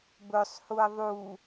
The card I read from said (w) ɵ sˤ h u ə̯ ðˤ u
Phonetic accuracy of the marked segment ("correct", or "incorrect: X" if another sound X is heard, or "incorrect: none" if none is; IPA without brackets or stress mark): incorrect: b